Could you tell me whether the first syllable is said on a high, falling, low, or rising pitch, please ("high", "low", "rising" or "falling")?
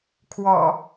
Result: low